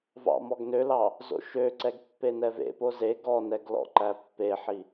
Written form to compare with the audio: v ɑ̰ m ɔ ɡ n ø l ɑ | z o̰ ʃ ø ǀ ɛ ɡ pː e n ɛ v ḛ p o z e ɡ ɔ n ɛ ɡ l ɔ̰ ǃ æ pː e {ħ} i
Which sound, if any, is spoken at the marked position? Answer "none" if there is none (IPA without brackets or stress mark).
ħ